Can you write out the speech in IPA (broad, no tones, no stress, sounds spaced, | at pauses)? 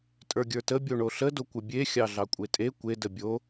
tʼ ə˞ ɡʲ ə˞ t ə bʲ o ɳ o ɬ ə d o kʷ ə bʲ e xʲ ɑ ɮ ɑ kʷʼ e tʼ e kʷ e d ə bʲ o